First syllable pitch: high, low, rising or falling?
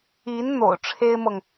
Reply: rising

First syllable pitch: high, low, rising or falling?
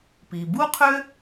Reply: low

